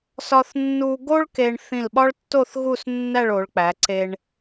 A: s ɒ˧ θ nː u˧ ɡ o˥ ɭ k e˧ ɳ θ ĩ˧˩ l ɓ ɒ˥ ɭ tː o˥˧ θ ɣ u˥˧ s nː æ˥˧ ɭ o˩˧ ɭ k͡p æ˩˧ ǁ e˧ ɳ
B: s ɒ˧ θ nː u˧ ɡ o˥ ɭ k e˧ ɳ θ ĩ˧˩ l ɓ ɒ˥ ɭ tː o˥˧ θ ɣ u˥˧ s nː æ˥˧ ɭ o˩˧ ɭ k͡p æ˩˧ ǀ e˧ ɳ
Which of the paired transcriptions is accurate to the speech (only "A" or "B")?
B